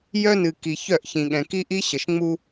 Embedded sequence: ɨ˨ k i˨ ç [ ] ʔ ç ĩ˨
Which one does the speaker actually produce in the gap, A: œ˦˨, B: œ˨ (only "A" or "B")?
A